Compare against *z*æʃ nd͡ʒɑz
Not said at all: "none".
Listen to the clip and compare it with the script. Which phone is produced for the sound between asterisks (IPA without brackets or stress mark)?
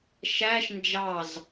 ʃ